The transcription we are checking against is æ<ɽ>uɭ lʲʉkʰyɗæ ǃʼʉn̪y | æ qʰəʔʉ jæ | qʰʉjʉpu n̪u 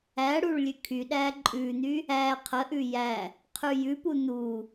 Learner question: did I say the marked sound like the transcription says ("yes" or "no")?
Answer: yes